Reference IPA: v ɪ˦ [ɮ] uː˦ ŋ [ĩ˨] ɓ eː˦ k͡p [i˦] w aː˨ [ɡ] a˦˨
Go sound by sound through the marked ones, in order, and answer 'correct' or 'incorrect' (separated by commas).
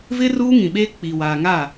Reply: incorrect, correct, incorrect, incorrect